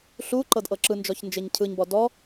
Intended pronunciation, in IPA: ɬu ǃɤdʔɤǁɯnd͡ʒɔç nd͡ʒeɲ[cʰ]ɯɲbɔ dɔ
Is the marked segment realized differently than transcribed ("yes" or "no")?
no